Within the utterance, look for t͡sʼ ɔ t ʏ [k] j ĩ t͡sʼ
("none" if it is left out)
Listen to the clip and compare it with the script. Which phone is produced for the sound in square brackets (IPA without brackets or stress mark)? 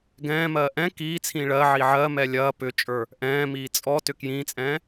k